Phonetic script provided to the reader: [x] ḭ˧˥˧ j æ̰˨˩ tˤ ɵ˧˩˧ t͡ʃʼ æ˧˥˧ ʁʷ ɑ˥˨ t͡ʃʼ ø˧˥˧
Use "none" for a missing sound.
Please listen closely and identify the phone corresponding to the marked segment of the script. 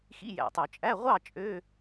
x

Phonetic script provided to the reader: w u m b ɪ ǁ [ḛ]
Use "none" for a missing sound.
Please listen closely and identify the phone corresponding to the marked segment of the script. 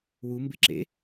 ḛ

